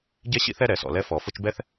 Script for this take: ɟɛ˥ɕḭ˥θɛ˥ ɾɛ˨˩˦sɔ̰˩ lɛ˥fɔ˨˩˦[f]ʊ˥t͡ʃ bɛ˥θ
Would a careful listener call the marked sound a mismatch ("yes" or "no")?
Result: no